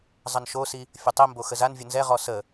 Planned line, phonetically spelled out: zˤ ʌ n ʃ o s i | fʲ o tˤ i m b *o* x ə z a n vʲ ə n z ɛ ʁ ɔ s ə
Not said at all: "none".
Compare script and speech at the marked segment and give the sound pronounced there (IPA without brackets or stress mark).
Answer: o